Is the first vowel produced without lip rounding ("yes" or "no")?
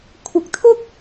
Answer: yes